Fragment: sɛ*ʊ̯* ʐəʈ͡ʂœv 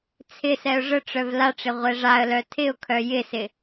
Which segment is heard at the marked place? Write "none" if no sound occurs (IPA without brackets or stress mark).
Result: ʊ̯